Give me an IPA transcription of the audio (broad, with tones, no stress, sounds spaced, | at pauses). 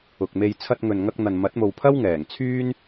ʊ˨ k̚ m e˧ j t͡sʰ ɐ˧ t̚ ŋ ɵ˨ n ŋ ɐ˧ k̚ n̪ ɐ˨ n m ɐ˨˥ t̚ m o˨ w pʰ ɐ˥ w ŋ ɛː˨˩ ŋ t͡sʰ yː˥ n